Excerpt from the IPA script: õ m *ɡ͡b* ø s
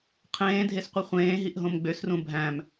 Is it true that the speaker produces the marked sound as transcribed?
yes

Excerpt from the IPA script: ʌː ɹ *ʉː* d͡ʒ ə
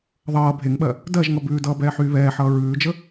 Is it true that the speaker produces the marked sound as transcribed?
yes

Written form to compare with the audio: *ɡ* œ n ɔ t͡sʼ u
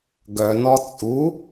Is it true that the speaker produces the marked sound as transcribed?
yes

